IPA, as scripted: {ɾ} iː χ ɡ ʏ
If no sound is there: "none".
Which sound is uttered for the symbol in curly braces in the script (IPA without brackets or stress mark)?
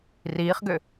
r